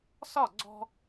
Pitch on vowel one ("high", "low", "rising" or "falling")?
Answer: falling